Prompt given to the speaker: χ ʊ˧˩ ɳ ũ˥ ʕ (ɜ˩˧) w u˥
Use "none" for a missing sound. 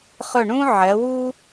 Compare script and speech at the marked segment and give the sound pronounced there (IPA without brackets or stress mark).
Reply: ɜ˩˧